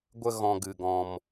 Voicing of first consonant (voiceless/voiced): voiced